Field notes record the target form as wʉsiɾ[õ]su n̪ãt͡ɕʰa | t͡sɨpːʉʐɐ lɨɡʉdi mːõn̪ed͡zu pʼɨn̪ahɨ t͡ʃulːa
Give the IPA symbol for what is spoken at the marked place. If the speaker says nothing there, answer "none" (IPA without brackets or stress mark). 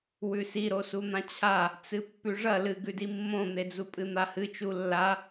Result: o